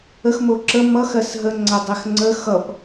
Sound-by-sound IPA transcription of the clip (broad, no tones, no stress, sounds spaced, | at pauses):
ə x m o ǁ ə m ʌ x ɜ s ɦ ə ŋ͡ǀ æ dˤ æ x ŋ͡ǀ ə x ʌ p